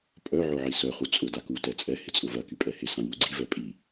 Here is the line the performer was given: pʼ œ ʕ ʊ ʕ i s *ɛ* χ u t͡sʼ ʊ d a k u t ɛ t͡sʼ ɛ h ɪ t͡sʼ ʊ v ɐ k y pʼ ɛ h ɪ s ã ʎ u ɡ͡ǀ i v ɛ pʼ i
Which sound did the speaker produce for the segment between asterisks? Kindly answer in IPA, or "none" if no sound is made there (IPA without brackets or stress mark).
œ